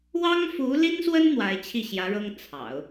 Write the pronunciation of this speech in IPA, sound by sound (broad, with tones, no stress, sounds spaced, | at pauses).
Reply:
w ɑ˥ ŋ f u˧˥ l i˥ n s w ə˥ n n̪ w a˧˥ ɪ̯ t͡ɕʰ i˥˩ ɕ j ä˧˥ ɻ ɤ˥ ŋ t͡sʰ ɑ̰˨˩˦ ʊ̯